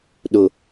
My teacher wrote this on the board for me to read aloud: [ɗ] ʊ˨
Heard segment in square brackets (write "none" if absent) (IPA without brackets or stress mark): ɗ